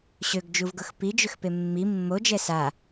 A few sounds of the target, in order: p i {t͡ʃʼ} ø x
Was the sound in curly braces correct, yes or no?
no